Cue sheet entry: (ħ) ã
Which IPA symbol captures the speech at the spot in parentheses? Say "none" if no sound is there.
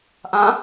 ʔ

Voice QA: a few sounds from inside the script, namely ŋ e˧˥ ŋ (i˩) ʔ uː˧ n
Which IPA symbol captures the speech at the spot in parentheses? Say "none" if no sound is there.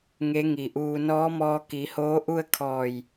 i˩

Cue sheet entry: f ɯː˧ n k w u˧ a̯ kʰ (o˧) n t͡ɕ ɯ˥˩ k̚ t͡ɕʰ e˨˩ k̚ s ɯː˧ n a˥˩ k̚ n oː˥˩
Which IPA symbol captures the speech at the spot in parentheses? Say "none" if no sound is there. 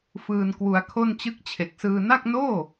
o˥˩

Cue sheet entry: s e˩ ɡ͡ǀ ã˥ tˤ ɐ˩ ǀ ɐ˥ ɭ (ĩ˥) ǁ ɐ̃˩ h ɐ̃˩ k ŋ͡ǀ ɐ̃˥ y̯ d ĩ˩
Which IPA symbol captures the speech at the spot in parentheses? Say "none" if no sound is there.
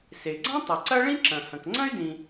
ĩ˥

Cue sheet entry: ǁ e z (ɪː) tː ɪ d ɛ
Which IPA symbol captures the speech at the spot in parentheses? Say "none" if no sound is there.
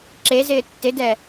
ɪː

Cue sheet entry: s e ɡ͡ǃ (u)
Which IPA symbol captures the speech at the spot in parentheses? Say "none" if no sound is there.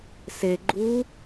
u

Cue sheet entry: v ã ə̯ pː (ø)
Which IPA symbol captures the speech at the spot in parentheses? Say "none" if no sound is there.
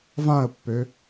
ø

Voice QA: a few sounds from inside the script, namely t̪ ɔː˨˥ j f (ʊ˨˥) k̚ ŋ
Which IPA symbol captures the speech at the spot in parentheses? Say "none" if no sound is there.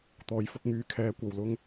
ʊ˨˥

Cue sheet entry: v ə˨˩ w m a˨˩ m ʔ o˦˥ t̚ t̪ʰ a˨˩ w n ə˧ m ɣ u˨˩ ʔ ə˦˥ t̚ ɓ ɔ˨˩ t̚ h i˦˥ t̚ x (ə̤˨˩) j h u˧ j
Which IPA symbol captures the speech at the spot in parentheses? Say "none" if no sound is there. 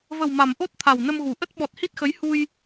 ə˨˦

